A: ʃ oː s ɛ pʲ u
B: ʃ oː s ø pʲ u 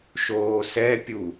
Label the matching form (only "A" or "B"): A